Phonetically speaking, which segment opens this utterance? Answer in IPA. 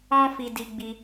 ɔ̃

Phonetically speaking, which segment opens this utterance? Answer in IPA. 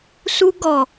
s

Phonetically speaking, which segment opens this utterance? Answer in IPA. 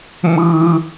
m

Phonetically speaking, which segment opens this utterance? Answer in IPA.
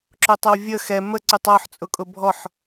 ǁ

